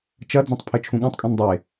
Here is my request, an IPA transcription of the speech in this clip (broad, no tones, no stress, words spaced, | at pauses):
t͡ʃɐ d͡zõtˤpʰɘt͡ʃʰũɠũtˤ kʼũndˤe